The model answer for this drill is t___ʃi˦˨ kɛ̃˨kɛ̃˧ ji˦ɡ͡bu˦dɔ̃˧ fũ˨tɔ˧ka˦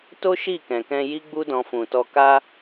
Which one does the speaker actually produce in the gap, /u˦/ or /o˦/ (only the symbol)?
o˦